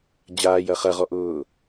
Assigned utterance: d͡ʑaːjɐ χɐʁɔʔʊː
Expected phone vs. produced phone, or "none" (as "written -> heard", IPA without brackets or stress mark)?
none